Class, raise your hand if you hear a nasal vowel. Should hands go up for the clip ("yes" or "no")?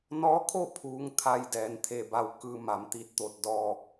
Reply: no